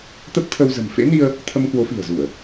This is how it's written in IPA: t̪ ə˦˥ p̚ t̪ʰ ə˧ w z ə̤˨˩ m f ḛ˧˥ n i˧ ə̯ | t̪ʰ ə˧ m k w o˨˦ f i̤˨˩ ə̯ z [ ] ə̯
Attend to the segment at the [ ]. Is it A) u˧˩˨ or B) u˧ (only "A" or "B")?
A